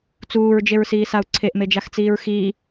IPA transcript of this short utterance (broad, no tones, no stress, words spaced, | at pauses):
t͡suːɹd͡ʒeɹsiːsau̯ ǀʰeʔmed͡ʒaxt͡siːɹ xiː